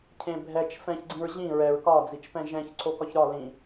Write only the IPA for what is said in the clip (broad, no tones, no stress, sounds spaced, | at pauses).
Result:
cʰ ẽ bʱ ɛ t͡ʃ f ɛ̃ ç ɡ͡ǀ ĩ ɹ ʑ ĩ ɹ ɛ ɹ k ɒ d͡z i t͡ʃ p ɛ̃ ʒ ɛ̃ ç ǀʰ o k ɒ ç ɾ ɒ l ĩ